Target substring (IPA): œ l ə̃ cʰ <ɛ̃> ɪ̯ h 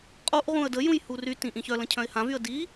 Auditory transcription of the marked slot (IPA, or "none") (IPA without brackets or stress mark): œ̃